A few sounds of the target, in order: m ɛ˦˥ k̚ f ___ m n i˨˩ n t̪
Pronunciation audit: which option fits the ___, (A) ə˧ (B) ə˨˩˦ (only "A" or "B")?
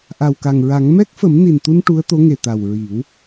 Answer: B